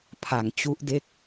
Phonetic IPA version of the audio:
pʰ a˨˩ ŋ t͡ɕ u˦˥ ʔ d e˥˩ k̚

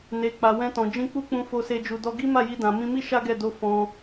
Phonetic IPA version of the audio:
n e˨ k͡p a˨ w ɛ̃˧ t ɔ̃˨ d͡ʒ ĩ˧ k͡p u˦ k͡p ũ˧ f o˧ s e˧ d͡ʒ u˨ d ɔ˧ ɡ i˦ m a˦˨ j i˧ d ã˨ m ĩ˧ m i˦ ʃ a˦ ɡ ɛ˦˨ d o˧ f ɔ̃˧

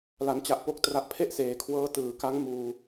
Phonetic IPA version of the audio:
l a˩˦ n t͡ɕ a˨˩ ʔ p o˦˥ k̚ t r a˨˩ ʔ pʰ e˥˩ ʔ s eː˩˦ kʰ w ɤː˦˥ t ɯː˩˦ k a˦˥ ŋ m uː˧

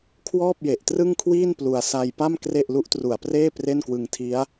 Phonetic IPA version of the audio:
kʰ w ɔː˥˩ p̚ j e˨˩ ʔ t r ɯ˥˩ ŋ kʰ w iː˥˩ n p l u˧ a̯ s a˧ j p a˥˩ m k r e˥˩ ʔ l u˦˥ ʔ t r u˨˩ a̯ p r eː˥˩ p r e˥˩ n k w ɯ˧ ŋ tʰ i˦˥ a̯

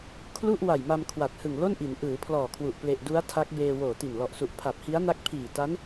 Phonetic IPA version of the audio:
kʰ l u˥˩ ʔ w a˨˩ j m a˧ m kʰ w a˨˩ t̚ h ɯ˨˩ ŋ l o˥˩ n ʔ i˩˦ n ʔ ɯː˩˦ pʰ l ɔː˨˩ kʰ w u˨˩ ʔ p l e˨˩ ʔ d u˦˥ a̯ tʰ a˦˥ k̚ b eː˧ w oː˨˩ t i˨˩ n l ɔ˨˩ ʔ s u˨˩ ʔ pʰ a˨˩ p̚ h i˦˥ a̯ n a˦˥ k̚ pʰ iː˨˩ t a˦˥ n

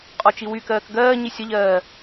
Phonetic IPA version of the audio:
qʼ ɔ t͡ʃ i w y k ɜː k ɡ ɜː ɲ i sʲ ɐ ʎ ɜː

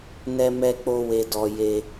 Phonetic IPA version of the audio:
n ɛ˦ m ɛ˦ k͡p o˦ w e˦ d ɔ˦ j e˦

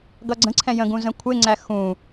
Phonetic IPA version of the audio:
ɡ ʌ ɡ͡ǀ ə̃ ǀʰ ɛ̃ j ə̃ ɡ ũ z ə̃ kʷʰ ɪ ŋ͡ǀ æ x ũ

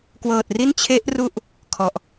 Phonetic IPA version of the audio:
k w ɤː˨˩ t̚ r i˥˩ n t͡ɕʰ e˦˥ ʔ r u˦˥ ʔ | kʰ ɔ˨˩ ʔ

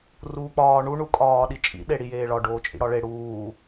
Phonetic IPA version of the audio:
r uː k͡p ɒː ɳ u ɳ u kʼ ɒː ɗ i t͡ʃʼ ḭ ɗ e ɽ i j eː ɭ ɒ ɖ oː t͡ʃʼ ḭ ɽ ɒ ɭ e ɽ uː

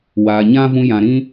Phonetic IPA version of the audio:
w aː˨ ɲ ã˦ v ũ˧ j ã˨ ɾ ĩ˦

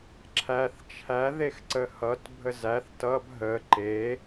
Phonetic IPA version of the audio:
ǁʰ æ θ t͡ʃʰ æ ð e x ǀ ə h ʌ t bʱ ə z æ θ t ʌ b ɦ ə ǃ e

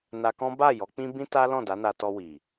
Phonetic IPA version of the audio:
n a˧ k ɔ̃˦ b a˦˨ j ɔ˨˦ k͡p ĩ˦ b ĩ˦ t a˦ l ɔ̃˦˨ d a˨˦ n a˧ t ɔ˧ w i˨

